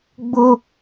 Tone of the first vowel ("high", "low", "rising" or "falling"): high